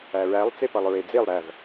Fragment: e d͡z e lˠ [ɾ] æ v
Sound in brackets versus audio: correct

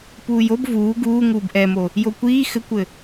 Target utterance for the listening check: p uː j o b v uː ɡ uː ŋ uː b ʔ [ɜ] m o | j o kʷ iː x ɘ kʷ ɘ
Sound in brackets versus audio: incorrect: ɛ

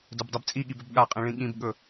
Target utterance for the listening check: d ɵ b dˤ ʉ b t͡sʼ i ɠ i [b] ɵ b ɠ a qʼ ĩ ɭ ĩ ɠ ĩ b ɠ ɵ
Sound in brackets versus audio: correct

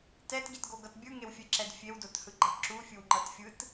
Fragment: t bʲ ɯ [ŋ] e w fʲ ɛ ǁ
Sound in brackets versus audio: correct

